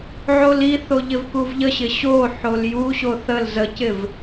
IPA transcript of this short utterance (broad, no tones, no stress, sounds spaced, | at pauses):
ʕ o l i θ o ʎ ɪ v k u v ʎ ə ɕ ɪ ɕ o ħ o l j u ɕ o θ ə l z ə c ɪ v